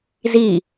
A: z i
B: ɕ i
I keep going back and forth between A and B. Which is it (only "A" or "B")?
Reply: A